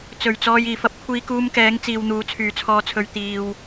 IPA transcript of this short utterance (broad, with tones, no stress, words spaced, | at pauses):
t͡sɵ˨˩ɥt͡sɔː˧j iː˨˩fɐ˧p̚ kʷʰiː˧kuː˧mkɛː˨˧ŋ t͡siː˨w n̪uː˨˧t͡sʰyː˨t͡sʰɔː˧t͡sʰɵ˧ɥ t̪iː˧w